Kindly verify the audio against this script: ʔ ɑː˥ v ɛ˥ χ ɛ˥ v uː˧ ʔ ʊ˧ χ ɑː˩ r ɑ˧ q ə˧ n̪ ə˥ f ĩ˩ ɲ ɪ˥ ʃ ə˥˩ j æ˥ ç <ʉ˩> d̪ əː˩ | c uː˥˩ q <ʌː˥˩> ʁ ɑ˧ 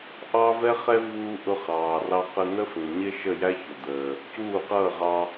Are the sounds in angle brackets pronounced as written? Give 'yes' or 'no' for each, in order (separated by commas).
no, yes